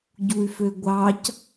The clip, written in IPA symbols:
ɟuy̯føɡʷɑc

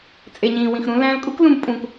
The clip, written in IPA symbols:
t͡sʼe˨ɲĩː˨wĩ˨x ɾũ˧ læ̃˧l kʼu˦klũ˧bpʼũ˨k

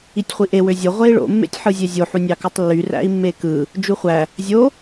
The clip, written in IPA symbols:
itʲχʷiʔe wøzʲo ʁʷei̯ɭo̰ mːḛtʲħɯzʲezʲo ħunʲɑkutˤlːy ræ̰i̯mːekɯ | d͡ʒuχʷæ | zʲo

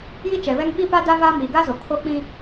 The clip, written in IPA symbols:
ji˦t͡ʃɛ˨βɛ˦ŋ ɓi˦pa˦ da˦vaː˦ miː˨ɡa˦zo˨ kʰo˦k͡pĩ˦

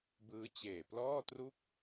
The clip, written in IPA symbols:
bɯː˦˥t͡ɕeː˨˩plɔː˥˩tru˥˩k̚

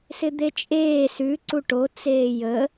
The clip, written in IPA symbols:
sɪd̪et͡ʃʼeː sʉ ǀuʈo t͡seːjə

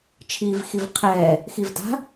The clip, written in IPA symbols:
t͡ʃʰiːvxivqʰɛː | xivda̤

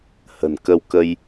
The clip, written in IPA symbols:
hə̤˨˩nkə˧wkə˧j

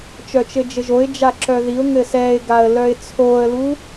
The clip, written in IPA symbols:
t͡ʃœt͡ʃɘd͡ʒɘʒoɪ̯ d͡ʒaǁœðiʊ̯ ŋɘsɛɪ̯ɡaə̯ lœɪ̯t͡sʰoə̯lu

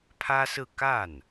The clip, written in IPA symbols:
pʰä˥sɹ̩˥˧ ka˥˩n

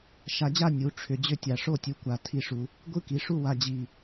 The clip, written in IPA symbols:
ʃa˧d͡ʑa˥˧ nʲu˩˧ ʈ͡ʂʰʏ˧˩d͡ʑʏ˥˧tʲa˧˩ʂo˥˧ tʲu˧kʷa˧˩ tʰi˥˧ʂu˧ | ɡʷɯ˥ki˩˧ʂu˥˧ wa˧d͡ʑi˧˩

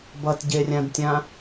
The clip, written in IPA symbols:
bʌtɟerʲãdtʲã

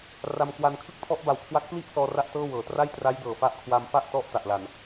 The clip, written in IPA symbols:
ra˧mkwa˧n kʰɯ˥˩k̚tʰɔ˦˥ʔba˨˩wkʰwa˦˥k̚ pli˥˩ʔsɔː˧ ra˥˩ʔtɤː˥˩wɤː˩˦ tra˥˩jtra˦˥jdɤː˨˩ fa˦˥ʔkʰwa˧m fa˥˩ʔtɔ˦˥ʔ ta˨˩ʔla˨˩n

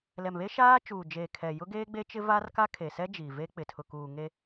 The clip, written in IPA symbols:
lɛ˨mβe˦ ʃaː˦ t͡ʃuː˨d͡ʒeː˨ kʰɛ˨ jʊ˦ɡeː˦ɡ͡be˦t͡ʃɪ˦ va˦rka˦kʰe˨sɛ˦ d͡ʒiː˨ve˦k͡pɪ˨ tʰʊ˨kuː˨ŋe˦

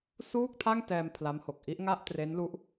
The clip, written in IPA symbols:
suː˥˩k̚tʰa˥˩ŋtɛː˧m pʰla˦˥mho˨˩k̚ ʔi˦˥ʔŋa˥˩ʔtre˦˥nlu˦˥ʔ

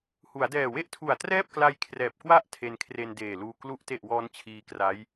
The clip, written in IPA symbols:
hu˩˦a̯dɛː˨˩we˥˩ʔtʰu˨˩a̯ trɛː˥˩p̚kla˧j kʰrɛː˨˩p̚kwa˥˩ʔ tʰe˧nkʰre˧ndeː˨˩luː˧ klu˨˩ʔte˨˩ʔ wɔː˦˥nt͡ɕʰiː˧kra˦˥j

